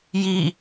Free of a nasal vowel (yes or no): yes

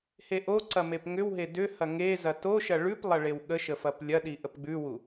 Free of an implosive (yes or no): no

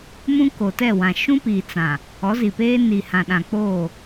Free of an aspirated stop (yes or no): yes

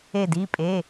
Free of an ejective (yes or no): no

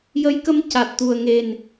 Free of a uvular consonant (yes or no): yes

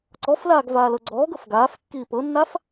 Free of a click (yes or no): no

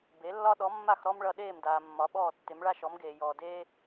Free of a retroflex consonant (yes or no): no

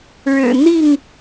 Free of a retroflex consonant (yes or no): no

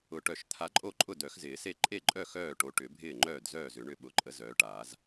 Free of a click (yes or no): no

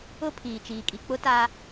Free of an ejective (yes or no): no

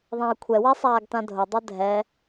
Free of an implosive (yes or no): yes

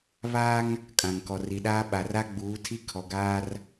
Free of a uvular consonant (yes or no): yes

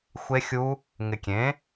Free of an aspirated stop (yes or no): yes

